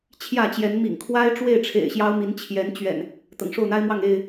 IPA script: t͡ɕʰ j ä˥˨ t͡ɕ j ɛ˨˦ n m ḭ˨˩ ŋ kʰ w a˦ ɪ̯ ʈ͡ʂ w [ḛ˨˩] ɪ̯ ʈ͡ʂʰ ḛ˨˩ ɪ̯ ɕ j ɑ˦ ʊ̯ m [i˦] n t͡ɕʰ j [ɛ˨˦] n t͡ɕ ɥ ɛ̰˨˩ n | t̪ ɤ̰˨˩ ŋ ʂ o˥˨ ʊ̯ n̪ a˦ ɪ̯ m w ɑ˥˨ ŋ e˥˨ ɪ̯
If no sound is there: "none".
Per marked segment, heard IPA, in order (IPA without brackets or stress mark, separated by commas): e˥˨, i˨˦, ɛ˨˦